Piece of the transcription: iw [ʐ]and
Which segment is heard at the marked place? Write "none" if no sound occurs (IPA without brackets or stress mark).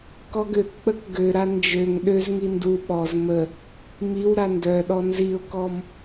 ɾ